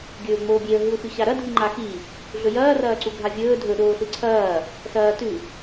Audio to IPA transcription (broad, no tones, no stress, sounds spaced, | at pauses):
ɡʲ ɵː ŋ͡m oː bʲ e ə̯ ɦ ɨ ʊ̯ x ʉ ɕ a ɾ ɐ dʱ i ŋ͡ǃ a x i | ɮ ɵ j ɐː r ɐː ǀ u ɡʱ a vʲ ɵː dʱ ɵ ɗ oː ɬ ɨ ǀʰ ɐː | s ɐː t ʉ